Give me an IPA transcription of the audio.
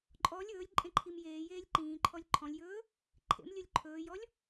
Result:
ǃʼ ɔ lʲ ɵː lʲ ǃʼ ẽ ǃʰ i m j eː j eː lʲ ǃ ĩː ǃʰ ɔ lʲ ǃʰ ɔ̃ lʲ j ɵː | ǃʰ ḛ m lʲ ɵ lʲ ǃʰ ɵː j ɔ lʲ

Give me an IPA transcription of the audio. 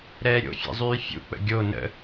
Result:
ɾ ɛː ɾʲ o̰ fʲ ɛ̰ zˤ yː fʲ ṵ k͡p ə̰ ɡʲ o n ə̰

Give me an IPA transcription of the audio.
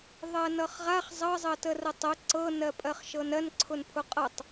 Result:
ðˤ ɜ n ʌ χ ʁ a χ zˤ ʌ zˤ ə t ə r ə tˤ ə ǀ ɤ n ɜ pʼ ɜ χ ʃ ɤ n ɜ n ǀʰ ʊ n pʰ ʊ qʼ ɤ tˤ

